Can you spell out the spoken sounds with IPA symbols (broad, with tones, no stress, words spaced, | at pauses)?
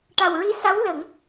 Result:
ʈa˨˩wɹi˧˥sa˧˥w lə˨˩˦ŋ